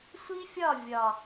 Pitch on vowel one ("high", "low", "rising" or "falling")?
high